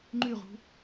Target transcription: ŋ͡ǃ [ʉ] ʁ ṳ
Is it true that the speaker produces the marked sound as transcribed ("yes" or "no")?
yes